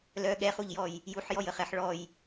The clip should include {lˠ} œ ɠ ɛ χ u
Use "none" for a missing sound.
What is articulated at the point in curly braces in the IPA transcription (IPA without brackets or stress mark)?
l